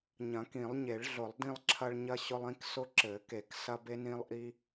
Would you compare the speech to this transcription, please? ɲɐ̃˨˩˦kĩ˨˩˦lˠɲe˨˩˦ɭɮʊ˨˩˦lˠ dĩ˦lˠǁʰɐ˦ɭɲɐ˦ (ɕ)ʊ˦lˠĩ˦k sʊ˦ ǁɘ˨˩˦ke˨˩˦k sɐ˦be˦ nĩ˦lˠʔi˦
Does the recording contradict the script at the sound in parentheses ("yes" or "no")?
no